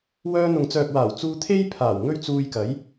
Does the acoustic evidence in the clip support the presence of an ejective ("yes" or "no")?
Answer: no